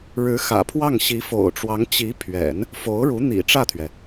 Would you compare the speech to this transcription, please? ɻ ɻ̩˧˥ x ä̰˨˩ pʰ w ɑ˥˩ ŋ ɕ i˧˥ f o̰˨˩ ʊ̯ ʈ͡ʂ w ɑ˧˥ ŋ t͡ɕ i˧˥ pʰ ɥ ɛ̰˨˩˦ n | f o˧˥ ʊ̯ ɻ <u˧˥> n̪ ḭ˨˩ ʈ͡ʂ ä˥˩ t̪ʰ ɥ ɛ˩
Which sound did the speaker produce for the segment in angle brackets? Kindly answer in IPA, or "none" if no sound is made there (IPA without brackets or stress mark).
u˧˥